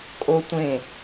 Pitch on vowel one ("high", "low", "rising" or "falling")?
high